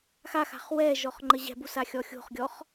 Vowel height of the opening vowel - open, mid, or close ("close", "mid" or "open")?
open